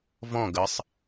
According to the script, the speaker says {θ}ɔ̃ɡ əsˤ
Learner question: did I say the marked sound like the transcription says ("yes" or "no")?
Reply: no